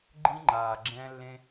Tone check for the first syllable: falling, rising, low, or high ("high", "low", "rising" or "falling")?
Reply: high